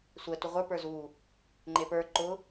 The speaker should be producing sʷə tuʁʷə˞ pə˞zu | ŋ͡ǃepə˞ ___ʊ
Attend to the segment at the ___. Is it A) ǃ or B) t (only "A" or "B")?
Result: A